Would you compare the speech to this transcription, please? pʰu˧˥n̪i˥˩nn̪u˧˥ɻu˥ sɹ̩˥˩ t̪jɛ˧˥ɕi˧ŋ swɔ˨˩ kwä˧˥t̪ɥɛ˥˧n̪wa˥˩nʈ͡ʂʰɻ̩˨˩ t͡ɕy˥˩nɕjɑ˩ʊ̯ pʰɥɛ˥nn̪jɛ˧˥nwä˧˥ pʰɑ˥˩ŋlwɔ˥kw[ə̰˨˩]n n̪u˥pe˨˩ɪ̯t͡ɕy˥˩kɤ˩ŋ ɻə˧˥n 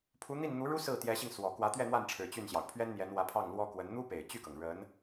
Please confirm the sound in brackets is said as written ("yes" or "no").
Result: no